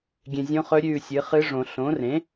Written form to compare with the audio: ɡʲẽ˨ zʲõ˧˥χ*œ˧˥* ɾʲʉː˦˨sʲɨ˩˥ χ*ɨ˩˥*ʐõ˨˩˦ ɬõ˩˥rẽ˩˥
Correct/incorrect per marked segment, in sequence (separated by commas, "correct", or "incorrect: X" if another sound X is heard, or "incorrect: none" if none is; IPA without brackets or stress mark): incorrect: ɵ˧˥, incorrect: ɨ˧˥